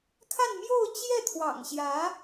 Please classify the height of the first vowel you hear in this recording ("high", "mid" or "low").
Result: low